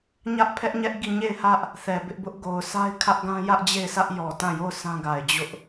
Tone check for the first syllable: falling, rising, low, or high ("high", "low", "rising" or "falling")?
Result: high